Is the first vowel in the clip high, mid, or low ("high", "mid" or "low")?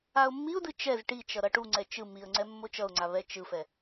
low